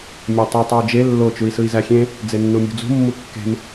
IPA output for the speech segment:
mʲætˤy tˤeu̯d͡ʒe lːo t͡ʃui̯sɯi̯zæxʲẽ | d͡zenːumʲṳd͡zṳ mːukːe̤m

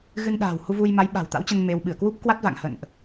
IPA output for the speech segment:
ɣɨ˧nɗa̤ː˨˩whu˧vu˧j ma˨˦jɓa̤˨˩wt̪a̰˧˥wt͡ɕə˧n me˧w ɓɨ˧˩ə̯kwu˦˥p̚ kwa˦˥t̚va̰˧˨ŋ hə̰˧˨nʔ

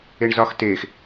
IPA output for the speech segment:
eɳzɒx tex

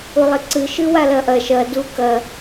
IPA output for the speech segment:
ulˠiǀɨ ʃɨwalɐʔɐ ʃɐ du kɐ

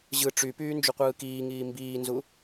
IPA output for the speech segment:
ʑɯ ʈ͡ʂypyː nd͡ʒuqʷɯːkiːŋiː mbiːnzu

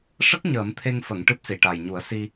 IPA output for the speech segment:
ʂə˦˥k̚ ɲəː˨˩˦mt̪ʰe˧ŋfə˨˩˨ŋ ʈɨ˦˥p̚si˨˩˨ʈa˨˩j ɲu˨˩˦ə̯si˧

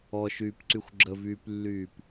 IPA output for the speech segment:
ɔʃyːpǀyxʷ ɡ͡ǁəvyːplːyːp

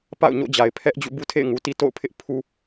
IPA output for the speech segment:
pa̰˦˨ʊ̯ɲo̰˦˨d͡ʑa˨ɪ̯ pʰɛ˦ʔd͡ʑṵ˦˨ bu˦tʰḛ˦˨ɪ̯ŋu˨ti˦ to̰˦˨ʊ̯pʰɪ˦ʔ pʰu˦

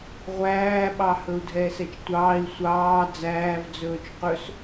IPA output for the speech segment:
ʁʷæːɓɑ hɵu̯dʱɛːsɛt͡ʃtʷɑːi̯ sʷɑː d͡zæːvd͡zɵːt͡ʃ qɵs

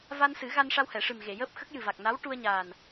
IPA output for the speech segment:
va˧nsɨ˨˩˦ɣa˧nʂa˧w hɛ˨˩˨ʂɨ˨˩mɣe˨˩˨jəː˦˥p̚ xə˦˥k̚ jɨ˨˩va˨˩k̚na˧˥w ʈu˧ə̯ɲaː˨˩n

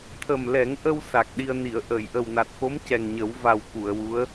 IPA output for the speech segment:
t̪ʰə˨˩mlɛ˨˩˦ŋʔə˧w sa˨˩k̚ɗi˧ə̯ ni˨˩˨ə̯ʔəː˨˩˨j ʔə˨˩wna˨˩t̚xo˧˥m cɛ˨˩ŋɲə˨˩˦w va˨˩w ku˨˩˨ə̯wu˧˥ə̯

